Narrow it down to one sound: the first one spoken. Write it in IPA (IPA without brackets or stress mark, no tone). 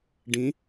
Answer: ɖ